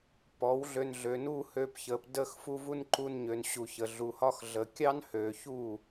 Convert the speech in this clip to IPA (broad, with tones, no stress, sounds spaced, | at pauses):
p ɔː˨˦ w ɮ ø˧ n ɮ ø˨ n uː˦ h ø˧ p ç əː˨ p d əː˧ x f u˧ v u˦ n ǃ u˧ n ɲ ø˨ n ɕ u˨ ç ə˨ ɮ u˨ h ɒ˦ x ɮ ə˨ kʲ ɑ˦ n h øː˨ ç uː˦˨